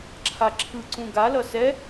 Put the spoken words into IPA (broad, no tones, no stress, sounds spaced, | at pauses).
ǁʰ a ǁʰ ɯ ǀ ũ ɡ a l ʌ s ɛ